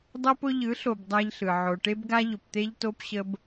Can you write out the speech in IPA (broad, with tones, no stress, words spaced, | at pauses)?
dˤɤ˦pʊ˦ ʎɯ˨˦ɬo˨b dˤæ˦ʎɬɯ˨ ʕo˨ʈe˦bɡa˦ ʎʊ˨pt̪e˦ʎto˦pɕə˦b